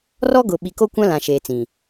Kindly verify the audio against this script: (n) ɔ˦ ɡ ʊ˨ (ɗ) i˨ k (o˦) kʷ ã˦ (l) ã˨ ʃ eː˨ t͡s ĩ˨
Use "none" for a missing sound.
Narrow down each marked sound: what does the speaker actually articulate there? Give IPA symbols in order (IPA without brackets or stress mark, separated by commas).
r, ɓ, o˦, l